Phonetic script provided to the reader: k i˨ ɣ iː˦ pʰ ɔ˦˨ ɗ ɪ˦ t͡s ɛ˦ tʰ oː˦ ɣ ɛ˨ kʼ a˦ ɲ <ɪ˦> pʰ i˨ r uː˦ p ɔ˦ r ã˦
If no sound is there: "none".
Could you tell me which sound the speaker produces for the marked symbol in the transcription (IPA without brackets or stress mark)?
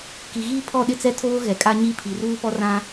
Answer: i˦